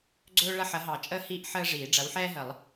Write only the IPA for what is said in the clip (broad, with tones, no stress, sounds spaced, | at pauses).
ɡ͡ǀ ɵː˥ ɭ ɐ˥ ħ ɐ˨˥ ɦ ɑ˨˩˦ t͡ʃʼ əː˥ h iː˥ ʔ ħ əː˥ ʐ iː˨˩˦ ɖ͡ʐ ɐ˨˥ w ħ ɛː˥ ɦ ə˨˩˦ lˠ